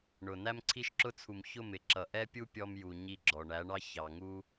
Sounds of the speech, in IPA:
ɳʊ˨ næ˧mǀʰi˧ʃǁʊ˧t͡sʰu˨m çʊ˦˨mɪ˨ ǁʌ˨ʔɛ˦pʲu˦ pʲɔ˧mju˨ ɲi˧ɡ͡ǁɔ˨ɳæ˨˦ɳɑ˦ çɑ˨ŋu˦

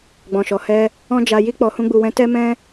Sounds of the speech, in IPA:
ɡ͡bɔ̃˨ʃɔ˨hɛ˧ | ɔ̃˦d͡ʒa˧ji˦ k͡pɔ˧hũ˦ɡ͡bu˧wɛ̃˦ tɛ˦mɛ̃˦

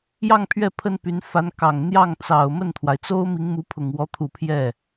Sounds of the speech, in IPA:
jɑ˥˧ŋpʰɥɛ˥˩ pʰə˥npy˧˥n fa˧˥nkɑ˨˩ŋ n̪jɑ˥˩ŋt͡sɑ˨˩ʊ̯ mə˥˩nt̪ʰwa˩ɪ̯t͡so˥ʊ̯ mi˧˥ŋmu˧˥pʰʊ˨˩ŋ wɔ˧˥t̪ʰu˨˩ pʰjɛ˥˩

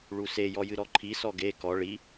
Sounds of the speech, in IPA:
ɭuse jɔjɨɾɔǃʰi sɔɡe kɔ ɭi

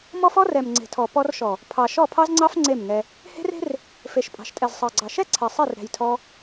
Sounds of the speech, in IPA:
mɔ˦fɔ˦rɛ˨m ŋ͡ǀe̤˨tʰɔ˨ pɔ˧rʃɔ˨ | pʰɑ˨ ʃɔ˦˨pʰɑ˦zŋ͡ǀɑ˦f ŋ͡ǀe˦˨mŋɛ˧ | he̤˦re̤˦r | fe˨ʃpʼɑ̤˨ʃtʼɛ˨z sˤɑ˨ɡ͡ǀɑ˨ʃɛ˦ ǀʰɛ˨sˤɛ˦˨r ɾɛ̤˧jtʰɔ˦

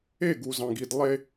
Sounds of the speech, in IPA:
e˦˨ɡu˨zɑ̃˨ɡ i˨d lˠe˦

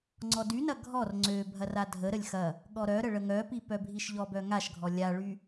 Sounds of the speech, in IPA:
ŋ͡ǀɔdynɐ ɡʱɔr ŋ͡ǀø bʱɐradʱəɾəlʲ xɐ | ɠɔɾœɾə ɭəŋœpi pœbʱiʃʎɔbœ ŋaʃɡʱɔ lʲaɭy

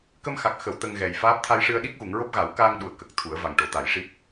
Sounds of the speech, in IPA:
kə˧mxa˨˩k̚xə˨˩˨w t̪ə˧ŋɣɛ˨˩jfaː˦˥p̚ t̪ʰa˧jʂɨ˧ə̯ ɗi˦˥k̚ɣu˨˩˨ŋɹo˦˥p̚ ɣa˨˩˦w kaː˧ŋɗu˨˩ə̯ kə˨˩k̚t̪ʰu˨˩˦ə̯ va˨˩ŋʈo˨˩˦t̪a˨˩˦jʂi˦˥p̚

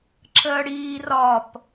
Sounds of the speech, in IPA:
ǁʰəːɽiː rɒp

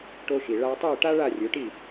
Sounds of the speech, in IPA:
ʈo˧ʃi˩ ɭa˧ tˤɨː˥˩ʈa˥ ɭa˥˩ rʲɵ˩˥ʈi˥˩

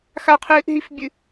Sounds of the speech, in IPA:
xaqʰɨːʔɦifbʲɨ

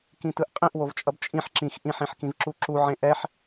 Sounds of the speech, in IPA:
kĩtɯʔqʼĩʔ wovt͡ʃʼʌbt͡ʃʼĩħ ǁĩx ʔĩħĩħkĩvǁu ǁuʕẽ ʔɛħ

